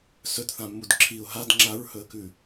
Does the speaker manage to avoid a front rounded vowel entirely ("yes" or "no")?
yes